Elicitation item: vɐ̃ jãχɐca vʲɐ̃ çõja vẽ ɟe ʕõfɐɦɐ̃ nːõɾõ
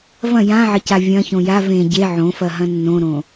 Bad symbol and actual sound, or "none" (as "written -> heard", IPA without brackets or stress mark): χ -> ʕ